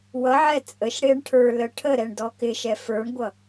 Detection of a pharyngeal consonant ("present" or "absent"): present